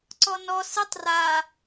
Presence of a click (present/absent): present